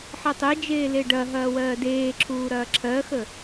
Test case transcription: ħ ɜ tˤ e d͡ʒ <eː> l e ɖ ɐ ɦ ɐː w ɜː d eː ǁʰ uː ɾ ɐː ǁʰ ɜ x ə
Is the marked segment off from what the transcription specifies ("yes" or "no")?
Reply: no